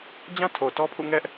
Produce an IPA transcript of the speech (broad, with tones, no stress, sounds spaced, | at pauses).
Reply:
d͡ʑ ã˦ tʰ o˨ t ɔ˦ pʰ ṵ˦˨ ŋ ɛ˦ ʔ